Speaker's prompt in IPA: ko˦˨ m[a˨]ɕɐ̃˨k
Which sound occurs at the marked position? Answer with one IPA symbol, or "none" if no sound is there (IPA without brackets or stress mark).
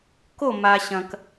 a˨